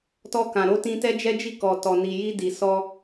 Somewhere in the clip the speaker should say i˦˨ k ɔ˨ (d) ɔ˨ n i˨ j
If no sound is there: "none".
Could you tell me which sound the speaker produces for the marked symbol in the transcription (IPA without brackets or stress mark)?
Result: t